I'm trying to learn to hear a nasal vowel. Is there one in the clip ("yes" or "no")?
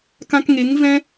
yes